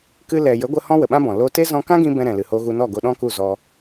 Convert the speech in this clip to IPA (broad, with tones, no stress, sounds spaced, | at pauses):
k ɨ˧ l ɛ˨ j ə˨˦ ɡʷ ə˧ h ɔ̃˦ w ə˨ ɓ ã˦ b ɔ̃˨ l o˧ t e˦ z ɔ̃˧ k ã˦ ɡ ĩ˧ b ɛ̃˧ ɾ ɛ̃˨ l ɨ˨ h o˧ ɣ u˧ n ɔ˦˨ ɡ o˧ ɗ ɔ̃˦ k u˦˨ z ɔ˧